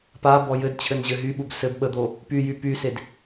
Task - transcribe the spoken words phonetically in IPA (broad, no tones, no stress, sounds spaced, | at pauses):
p a b ɔ j ɘ d t͡ɕʰ ɘ n ʑ ɘ ɦ y ɓ u b s ɘ b ɓ ə d̪ o | p y j y p y s e d